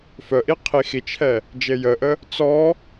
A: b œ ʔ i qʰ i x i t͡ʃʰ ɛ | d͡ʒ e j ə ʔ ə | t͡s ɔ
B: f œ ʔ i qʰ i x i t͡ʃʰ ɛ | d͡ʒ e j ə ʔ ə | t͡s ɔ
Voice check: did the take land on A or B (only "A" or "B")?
B